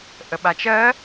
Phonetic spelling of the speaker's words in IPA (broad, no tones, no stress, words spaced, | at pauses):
ʔəɓat͡ʃɜ